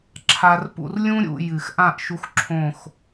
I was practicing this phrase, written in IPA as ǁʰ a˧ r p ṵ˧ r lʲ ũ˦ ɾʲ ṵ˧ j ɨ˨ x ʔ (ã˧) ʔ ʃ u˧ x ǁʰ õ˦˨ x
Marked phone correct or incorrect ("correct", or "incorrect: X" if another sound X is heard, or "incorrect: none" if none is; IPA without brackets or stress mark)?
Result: incorrect: ã˦˨